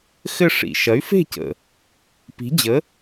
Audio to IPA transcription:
xɘ˥˨ʂḭ˨˩ ʃɐ˩˥y̯fe̤˥˨cə̰˨˩ | pi̤˩˥d͡ʑə˩˥

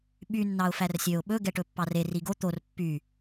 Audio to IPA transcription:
ɓy nːɑʊ̯færsʲøʊ̯ ɓɵ ɡɛʈɵpːɑre riɡo t̪or pːy

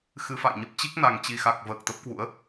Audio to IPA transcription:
xɨ˧fa̰˧˨jɲə˦˥p̚ t͡ɕi˦˥k̚na˨˩ŋt͡ɕi˨˩xa˨˩k̚ vəː˨˩k̚t̪ə˦˥p̚kwṵ˧˥ə̯

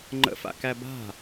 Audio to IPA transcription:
ŋ͡ǃə̰fa̰ kæba̤

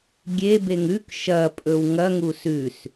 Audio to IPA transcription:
ɡʲebeŋ ʉk ʃɐpʼɵw ŋɐŋu sʉs

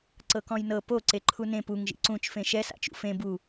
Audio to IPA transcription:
ǀɤkɔ̃jnɤ po ǀeǃʰunẽ puŋ ʒḭǀũt͡ʃ fẽʃɛ sa̰t͡ʃṵfẽ bu

